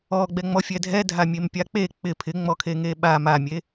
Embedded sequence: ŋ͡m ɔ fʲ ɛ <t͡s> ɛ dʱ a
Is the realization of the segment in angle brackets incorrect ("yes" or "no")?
yes